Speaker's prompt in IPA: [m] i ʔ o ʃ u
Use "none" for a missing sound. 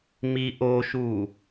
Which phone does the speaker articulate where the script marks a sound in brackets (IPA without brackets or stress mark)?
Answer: m